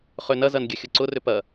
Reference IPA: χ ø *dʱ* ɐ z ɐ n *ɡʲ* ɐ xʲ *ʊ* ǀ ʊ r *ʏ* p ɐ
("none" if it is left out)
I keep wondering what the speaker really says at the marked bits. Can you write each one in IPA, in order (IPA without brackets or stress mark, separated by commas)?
n, ɡʲ, ʊ, ʏ